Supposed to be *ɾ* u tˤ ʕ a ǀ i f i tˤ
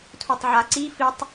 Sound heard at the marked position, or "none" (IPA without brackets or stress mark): tʰ